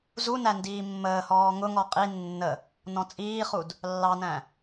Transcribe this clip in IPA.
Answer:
zunæ ndiːmːəːhɔː ŋʊŋɔ qʼi nːə | nɔ̃t͡sʼiːχud | lːɑnæ̃

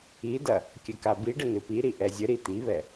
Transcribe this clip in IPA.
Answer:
idɐ | kʲɘkabiɖɘ nɨpiɾi ʔɛzʲɘɾi t̪iβɛ

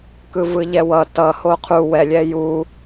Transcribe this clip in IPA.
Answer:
kɯvɯʎɛwʌ tʌ hoqʰu wɛlʲɛ ju

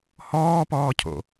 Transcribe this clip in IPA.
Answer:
hɔːpɔːcʰo̰

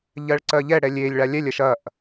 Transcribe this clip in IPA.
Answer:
ʎɜɭǀɜʎɛɽɛ lʲelʲɭa lʲɛlʲɜʃ ɐʔ

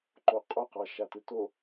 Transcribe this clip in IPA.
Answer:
ǃoqʼoqɑ ʃatɯto

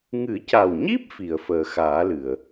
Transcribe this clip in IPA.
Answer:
ŋɨ˨˩˦ca˨˩wɲi˦˥p̚ fi˨˩˨ə̯fəː˨˩xaː˨˩˦lɨ˨˩˨ə̯

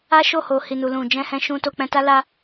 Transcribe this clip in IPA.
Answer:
a˦ʃo˦˨ho˨ hi˨nu˨lũ˨ d͡ʒɛ̃˧hɛ̃˧ʃũ˧ to˧k͡pɛ̃˧ta˦ la˧

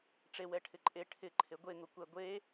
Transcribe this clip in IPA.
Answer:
ʈ͡ʂewɛʈʰɪ ǃʼe ʈʰɪǃʰe ɡʷeŋʊkʷɛ ɡʷe

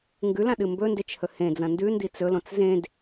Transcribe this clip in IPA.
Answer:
ŋɡʉlãɗɨ mbɵndet͡ʃhɵ hẽd͡zɐ̃ ndʉndi t͡sɵlõt͡s zẽd

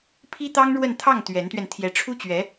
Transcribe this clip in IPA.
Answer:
pʰi˥t̪ɑ˥ŋɻwə˥˧n t̪ʰɑ˥˩ŋ t̪ɥɛ˧˥nt̪ɥɛ˧n t̪ʰjɛ˧˥ʈ͡ʂʰu˥t͡ɕɥɛ˧˥

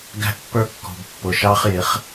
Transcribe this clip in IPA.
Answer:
ɡæ̤˦ʔpːə˞˦kːɔ̤˨b pːʊ˨ʃɑ˦χjɪ˨˦χ

